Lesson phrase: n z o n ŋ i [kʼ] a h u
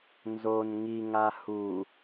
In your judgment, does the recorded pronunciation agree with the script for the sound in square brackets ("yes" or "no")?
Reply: no